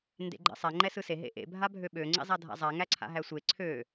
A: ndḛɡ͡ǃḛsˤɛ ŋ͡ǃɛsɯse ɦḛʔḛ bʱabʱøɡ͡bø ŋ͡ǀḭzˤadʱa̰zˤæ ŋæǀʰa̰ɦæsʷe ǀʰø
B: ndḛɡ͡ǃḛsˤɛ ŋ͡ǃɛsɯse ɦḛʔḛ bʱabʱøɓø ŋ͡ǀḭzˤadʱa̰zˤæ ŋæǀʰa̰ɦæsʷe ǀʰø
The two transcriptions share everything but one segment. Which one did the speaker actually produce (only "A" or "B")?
B